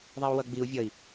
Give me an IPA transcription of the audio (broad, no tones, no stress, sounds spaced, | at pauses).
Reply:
ðˤ i u̯ w ʌ ɡ͡b i u̯ vʲ ʌ i̯